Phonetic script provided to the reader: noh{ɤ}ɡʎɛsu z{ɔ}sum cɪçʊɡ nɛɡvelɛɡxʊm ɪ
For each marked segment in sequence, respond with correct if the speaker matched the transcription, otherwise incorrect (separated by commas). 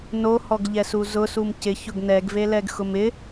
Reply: incorrect, incorrect